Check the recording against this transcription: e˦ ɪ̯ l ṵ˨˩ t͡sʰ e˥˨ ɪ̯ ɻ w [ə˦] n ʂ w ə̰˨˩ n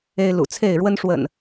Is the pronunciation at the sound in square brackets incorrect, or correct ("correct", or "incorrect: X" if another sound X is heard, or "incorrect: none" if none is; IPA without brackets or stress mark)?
correct